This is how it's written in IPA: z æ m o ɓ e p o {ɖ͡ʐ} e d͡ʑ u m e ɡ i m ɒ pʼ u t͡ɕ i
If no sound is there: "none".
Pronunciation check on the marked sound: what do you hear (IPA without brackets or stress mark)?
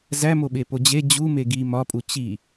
d͡ʑ